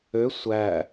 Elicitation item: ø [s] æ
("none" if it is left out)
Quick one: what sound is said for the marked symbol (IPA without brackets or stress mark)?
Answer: sʷ